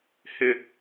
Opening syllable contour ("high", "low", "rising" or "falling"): high